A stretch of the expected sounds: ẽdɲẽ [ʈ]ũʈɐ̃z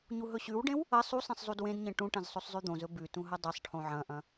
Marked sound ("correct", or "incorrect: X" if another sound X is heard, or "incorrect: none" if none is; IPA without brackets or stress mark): correct